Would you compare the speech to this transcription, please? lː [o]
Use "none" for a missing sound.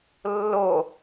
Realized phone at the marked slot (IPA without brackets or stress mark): o